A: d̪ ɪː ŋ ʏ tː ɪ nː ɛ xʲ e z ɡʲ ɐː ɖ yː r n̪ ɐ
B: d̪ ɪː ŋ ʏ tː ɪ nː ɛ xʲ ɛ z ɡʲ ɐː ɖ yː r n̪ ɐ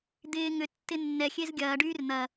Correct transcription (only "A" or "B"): A